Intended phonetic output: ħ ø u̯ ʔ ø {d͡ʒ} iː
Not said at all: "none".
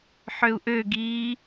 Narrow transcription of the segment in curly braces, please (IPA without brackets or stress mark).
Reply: ɡ